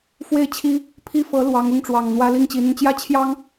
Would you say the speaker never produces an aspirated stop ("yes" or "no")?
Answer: no